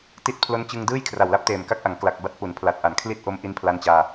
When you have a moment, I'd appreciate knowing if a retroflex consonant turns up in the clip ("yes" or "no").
no